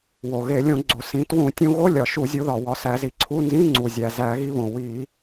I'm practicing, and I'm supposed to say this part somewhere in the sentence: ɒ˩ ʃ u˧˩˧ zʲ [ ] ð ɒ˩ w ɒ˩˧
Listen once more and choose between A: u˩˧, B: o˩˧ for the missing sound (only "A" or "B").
A